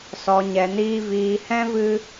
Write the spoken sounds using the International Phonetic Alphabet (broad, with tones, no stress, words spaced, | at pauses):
sɔ˧ɲɛ˧niː˦ viː˧ hɛ̃˦ vɨ˦